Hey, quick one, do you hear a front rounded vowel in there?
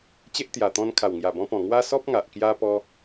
no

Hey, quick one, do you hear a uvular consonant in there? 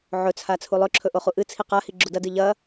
yes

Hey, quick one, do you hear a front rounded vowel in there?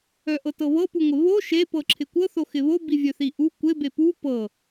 yes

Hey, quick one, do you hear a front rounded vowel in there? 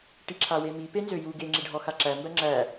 yes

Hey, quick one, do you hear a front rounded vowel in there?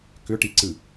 yes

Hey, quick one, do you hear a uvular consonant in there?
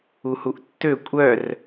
no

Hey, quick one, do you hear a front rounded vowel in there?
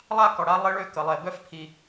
yes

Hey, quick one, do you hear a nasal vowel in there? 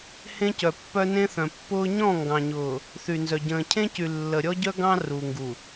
yes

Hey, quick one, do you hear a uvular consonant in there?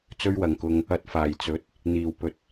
no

